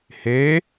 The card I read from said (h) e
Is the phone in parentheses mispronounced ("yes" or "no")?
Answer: no